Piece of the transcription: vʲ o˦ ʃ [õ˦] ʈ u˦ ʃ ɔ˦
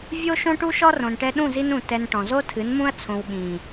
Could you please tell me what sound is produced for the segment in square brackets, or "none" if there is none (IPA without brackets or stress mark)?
õ˦